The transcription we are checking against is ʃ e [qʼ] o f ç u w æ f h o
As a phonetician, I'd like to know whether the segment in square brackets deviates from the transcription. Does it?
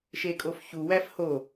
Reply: yes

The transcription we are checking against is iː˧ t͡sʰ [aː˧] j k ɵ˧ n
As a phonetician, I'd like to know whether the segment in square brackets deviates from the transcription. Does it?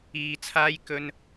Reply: yes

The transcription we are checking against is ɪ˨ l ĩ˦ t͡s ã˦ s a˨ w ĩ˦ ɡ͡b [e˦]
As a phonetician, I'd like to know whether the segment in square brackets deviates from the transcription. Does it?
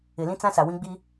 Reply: yes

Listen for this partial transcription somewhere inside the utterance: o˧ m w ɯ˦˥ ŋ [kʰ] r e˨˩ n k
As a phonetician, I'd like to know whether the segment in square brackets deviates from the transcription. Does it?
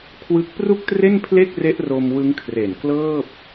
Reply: no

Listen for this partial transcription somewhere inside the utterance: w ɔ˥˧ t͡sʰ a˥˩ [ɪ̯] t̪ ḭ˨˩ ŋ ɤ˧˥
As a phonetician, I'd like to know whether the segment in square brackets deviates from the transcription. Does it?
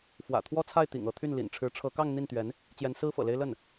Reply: no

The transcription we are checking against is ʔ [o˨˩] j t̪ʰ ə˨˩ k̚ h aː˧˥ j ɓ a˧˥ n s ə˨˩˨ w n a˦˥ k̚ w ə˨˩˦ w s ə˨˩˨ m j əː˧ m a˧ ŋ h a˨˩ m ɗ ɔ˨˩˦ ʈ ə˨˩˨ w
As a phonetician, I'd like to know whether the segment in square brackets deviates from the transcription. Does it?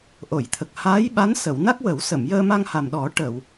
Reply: yes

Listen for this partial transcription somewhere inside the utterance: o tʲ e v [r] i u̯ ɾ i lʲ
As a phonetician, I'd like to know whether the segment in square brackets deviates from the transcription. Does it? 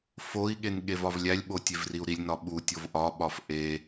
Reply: no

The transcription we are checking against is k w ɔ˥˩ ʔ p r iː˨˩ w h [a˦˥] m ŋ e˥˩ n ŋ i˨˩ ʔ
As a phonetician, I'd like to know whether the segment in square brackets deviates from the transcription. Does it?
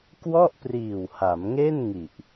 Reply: yes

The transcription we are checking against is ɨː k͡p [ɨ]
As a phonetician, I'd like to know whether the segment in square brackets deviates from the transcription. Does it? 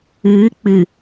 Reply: no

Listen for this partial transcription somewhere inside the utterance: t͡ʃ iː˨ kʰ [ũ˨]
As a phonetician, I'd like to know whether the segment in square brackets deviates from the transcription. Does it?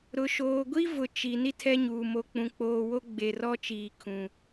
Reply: no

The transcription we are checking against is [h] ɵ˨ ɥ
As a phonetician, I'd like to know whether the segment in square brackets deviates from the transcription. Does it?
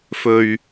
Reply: yes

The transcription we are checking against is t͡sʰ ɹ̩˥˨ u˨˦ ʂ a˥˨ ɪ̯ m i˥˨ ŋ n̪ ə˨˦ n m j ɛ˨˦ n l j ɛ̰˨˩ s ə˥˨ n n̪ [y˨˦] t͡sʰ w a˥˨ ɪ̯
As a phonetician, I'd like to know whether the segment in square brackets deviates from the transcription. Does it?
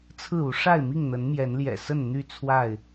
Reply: yes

